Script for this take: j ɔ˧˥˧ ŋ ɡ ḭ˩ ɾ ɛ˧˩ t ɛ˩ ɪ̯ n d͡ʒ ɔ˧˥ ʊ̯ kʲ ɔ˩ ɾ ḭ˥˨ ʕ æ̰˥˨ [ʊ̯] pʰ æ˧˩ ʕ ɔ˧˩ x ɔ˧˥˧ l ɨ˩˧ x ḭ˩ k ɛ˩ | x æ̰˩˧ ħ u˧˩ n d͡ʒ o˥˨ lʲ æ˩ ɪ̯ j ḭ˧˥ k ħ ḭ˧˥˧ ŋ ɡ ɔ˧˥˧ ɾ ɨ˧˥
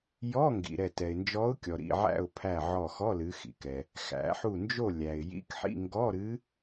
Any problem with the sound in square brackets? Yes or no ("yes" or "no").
no